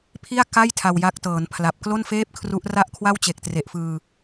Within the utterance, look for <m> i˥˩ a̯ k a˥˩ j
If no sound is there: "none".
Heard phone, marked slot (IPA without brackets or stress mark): pʰ